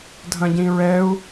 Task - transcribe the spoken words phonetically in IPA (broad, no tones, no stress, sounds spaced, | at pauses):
dʱ ɐ̃ ɟ ĩ ɹ ɛ u̯